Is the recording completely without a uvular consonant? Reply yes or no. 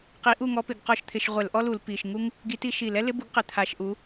no